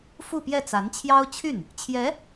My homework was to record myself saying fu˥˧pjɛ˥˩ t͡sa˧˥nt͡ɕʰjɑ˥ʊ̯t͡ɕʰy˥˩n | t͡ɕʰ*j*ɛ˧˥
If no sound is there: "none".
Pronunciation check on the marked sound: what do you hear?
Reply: j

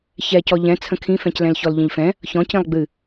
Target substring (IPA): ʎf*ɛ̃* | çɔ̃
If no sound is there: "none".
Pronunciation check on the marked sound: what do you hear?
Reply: ɛ̃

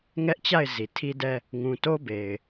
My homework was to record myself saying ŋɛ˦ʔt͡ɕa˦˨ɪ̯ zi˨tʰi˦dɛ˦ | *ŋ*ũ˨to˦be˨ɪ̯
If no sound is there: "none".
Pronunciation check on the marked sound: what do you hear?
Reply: ŋ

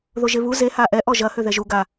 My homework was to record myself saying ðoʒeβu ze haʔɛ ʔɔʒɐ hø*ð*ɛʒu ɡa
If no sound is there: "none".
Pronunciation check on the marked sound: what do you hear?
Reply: ð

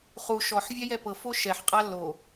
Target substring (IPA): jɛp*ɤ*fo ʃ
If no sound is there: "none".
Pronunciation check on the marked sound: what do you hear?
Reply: ɤ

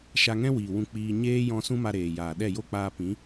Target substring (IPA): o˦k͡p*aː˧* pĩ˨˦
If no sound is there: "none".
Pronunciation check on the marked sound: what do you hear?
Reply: aː˧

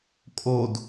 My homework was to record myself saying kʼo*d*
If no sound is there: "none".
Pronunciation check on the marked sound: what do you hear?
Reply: d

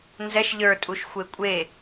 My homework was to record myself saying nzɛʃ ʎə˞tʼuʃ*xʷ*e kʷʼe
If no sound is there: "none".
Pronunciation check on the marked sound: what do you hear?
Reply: xʷ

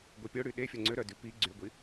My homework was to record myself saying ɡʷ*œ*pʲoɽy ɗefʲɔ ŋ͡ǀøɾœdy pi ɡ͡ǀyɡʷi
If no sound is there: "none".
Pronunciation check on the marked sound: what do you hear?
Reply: œ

